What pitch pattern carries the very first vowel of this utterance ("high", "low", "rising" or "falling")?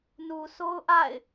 low